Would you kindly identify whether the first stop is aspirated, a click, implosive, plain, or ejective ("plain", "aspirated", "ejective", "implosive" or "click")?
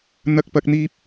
plain